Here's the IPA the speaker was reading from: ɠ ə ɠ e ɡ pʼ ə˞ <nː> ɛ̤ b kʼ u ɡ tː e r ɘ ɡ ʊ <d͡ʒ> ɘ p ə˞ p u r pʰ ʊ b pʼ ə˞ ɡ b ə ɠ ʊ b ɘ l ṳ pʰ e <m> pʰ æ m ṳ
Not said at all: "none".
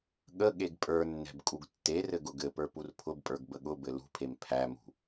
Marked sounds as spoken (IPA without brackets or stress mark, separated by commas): nː, ɡ, m